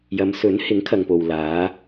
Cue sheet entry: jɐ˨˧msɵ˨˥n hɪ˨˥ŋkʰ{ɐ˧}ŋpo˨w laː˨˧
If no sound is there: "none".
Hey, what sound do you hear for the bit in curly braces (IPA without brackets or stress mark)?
ɐ˨